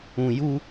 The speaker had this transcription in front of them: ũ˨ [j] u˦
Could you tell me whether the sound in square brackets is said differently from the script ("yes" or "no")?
no